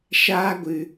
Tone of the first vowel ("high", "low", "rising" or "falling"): high